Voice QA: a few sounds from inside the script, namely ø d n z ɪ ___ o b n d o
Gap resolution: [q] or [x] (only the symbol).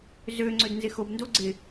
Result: x